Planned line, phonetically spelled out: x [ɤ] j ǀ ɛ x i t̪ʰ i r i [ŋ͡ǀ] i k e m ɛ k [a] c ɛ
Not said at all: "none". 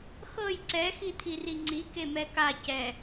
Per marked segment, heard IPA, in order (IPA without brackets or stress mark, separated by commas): ɤ, ŋ͡ǀ, a